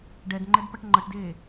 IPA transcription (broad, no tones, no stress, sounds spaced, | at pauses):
ɖ ɛ d ŋ͡ǃ ɛ d p ʌ ʈ ŋ͡ǃ ʌ ʈ d eː